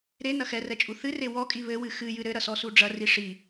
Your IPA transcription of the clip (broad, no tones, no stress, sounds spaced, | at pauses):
ɾ e n ɐ x ɛ r ɛ t͡ʃʼ u θ ɨ r e w ɔ kʼ i β ɘ w ɨ x ɨ j ɨ ɾ ɘ ɾ ɐ s ɔ s u ɖ͡ʐ ɐ r i ʂ i